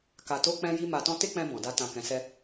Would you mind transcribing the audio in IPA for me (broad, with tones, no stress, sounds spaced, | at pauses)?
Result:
k a˨ t o˧ k͡p ɛ̃˦ j i˦ m a˧ t ɔ̃˦ t e˦ k͡p ɛ̃˧ b ɔ̃˨ d a˧ t ã˨ k ɛ̃˨ s ɛ˧